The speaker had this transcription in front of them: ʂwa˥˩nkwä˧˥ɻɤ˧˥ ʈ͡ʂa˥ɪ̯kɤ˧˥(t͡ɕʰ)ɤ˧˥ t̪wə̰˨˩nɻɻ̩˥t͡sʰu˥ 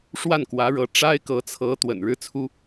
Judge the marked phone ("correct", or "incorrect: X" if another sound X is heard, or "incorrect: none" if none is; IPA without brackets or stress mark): incorrect: t͡sʰ